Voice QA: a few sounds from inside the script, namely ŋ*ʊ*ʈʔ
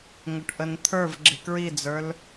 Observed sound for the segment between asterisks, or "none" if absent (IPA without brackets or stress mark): ʊ